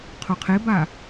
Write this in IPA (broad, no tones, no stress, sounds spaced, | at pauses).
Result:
qʰ o qʰ e b a